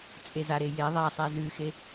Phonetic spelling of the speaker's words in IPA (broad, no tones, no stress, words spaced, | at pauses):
t͡sʼezaɾe je ðˤasˤɛ zʉxe